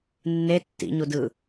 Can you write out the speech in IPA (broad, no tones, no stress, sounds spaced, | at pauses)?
nː e tː ḭ ɲ u d ɯ